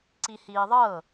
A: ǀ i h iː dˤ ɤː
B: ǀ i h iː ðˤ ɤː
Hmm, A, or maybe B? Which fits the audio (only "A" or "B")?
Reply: B